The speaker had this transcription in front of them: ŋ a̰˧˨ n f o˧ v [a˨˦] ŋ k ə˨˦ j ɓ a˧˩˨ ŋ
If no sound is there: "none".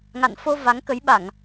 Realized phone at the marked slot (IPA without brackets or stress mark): a˨˦